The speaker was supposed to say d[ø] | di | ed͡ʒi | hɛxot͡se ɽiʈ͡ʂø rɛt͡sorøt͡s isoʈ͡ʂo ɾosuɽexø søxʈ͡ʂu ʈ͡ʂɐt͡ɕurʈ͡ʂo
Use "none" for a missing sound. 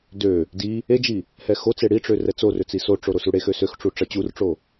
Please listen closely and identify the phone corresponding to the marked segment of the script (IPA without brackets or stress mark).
ø